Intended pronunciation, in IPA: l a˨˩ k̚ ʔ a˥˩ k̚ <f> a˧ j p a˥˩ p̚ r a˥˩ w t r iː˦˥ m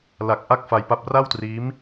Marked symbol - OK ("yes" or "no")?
yes